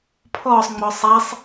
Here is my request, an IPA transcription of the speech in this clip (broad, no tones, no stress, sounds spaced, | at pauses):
pʰ ɔ sˤ ŋ͡m ɔ sˤ a sˤ